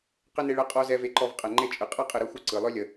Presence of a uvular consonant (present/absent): present